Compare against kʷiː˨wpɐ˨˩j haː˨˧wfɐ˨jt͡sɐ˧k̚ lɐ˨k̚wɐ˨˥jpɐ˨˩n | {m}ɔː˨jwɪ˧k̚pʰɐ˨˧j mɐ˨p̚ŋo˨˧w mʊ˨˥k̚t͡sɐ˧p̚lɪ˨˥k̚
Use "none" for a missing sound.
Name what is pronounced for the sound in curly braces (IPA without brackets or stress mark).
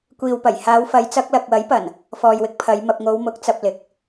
f